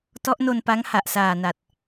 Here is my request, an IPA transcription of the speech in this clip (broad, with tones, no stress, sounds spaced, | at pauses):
t ɔ˦˥ ʔ n o˧ n p a˦˥ ŋ h a˨˩ ʔ s aː˨˩ n a˨˩ t̚